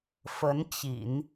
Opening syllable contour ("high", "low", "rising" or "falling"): rising